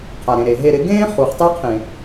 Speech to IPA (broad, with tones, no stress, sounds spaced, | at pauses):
qʰ a˨ ɾ ẽ˨ ɾ e˨ ɦ e˧ ɾ ɪ˨˦ ɡ ẽː˦ χ u˨ χ tˤ e˦ qʰ ẽ˨